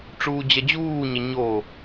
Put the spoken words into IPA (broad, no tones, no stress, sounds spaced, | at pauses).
ʈ͡ʂ uː d͡ʑ ɐ d͡ʑ uː ɲ ɐ ɲ o